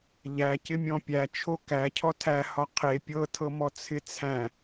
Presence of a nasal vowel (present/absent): present